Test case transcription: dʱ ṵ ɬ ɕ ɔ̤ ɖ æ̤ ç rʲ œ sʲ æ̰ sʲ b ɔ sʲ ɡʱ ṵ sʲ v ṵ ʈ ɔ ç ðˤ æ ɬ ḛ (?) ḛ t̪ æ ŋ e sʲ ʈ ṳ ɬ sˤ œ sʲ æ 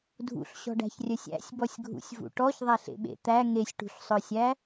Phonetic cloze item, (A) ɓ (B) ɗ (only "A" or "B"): A